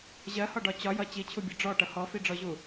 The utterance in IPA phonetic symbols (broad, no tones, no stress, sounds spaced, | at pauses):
ʑ ɜ h ɒ ɖ ɒ t͡ɕ ɒ j ʌ t͡ɕ i t͡ɕʰ u bʲ ɒ ɖ͡ʐ ɔ ʈ ʌ h ɔ f i ɖ͡ʐ ɔ ʑ u